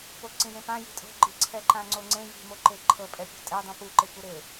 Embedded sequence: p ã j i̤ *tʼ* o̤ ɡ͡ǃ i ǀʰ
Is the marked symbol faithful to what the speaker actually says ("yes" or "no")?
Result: yes